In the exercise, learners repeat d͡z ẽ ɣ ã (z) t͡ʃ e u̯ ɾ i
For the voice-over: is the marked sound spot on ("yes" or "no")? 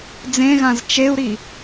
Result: yes